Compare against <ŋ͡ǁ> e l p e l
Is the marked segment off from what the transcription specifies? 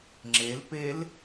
no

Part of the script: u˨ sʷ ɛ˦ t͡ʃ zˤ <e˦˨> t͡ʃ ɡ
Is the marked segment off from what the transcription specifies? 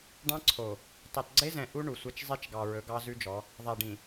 yes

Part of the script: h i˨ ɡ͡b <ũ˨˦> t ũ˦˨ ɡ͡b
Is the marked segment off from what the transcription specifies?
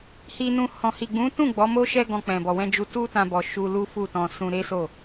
no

